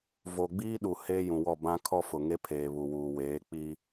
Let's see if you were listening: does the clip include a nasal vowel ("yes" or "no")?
yes